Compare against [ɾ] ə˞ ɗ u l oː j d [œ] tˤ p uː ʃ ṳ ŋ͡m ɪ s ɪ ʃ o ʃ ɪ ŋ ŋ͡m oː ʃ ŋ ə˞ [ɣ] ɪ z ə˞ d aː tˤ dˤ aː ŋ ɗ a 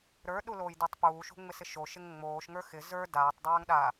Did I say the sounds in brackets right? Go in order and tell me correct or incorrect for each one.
correct, correct, incorrect

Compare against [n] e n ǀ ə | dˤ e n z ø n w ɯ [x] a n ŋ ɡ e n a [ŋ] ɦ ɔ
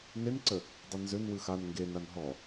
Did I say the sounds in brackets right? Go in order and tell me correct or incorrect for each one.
correct, correct, incorrect

